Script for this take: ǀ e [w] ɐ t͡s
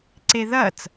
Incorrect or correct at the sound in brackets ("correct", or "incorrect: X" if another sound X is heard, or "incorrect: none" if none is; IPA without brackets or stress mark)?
incorrect: ð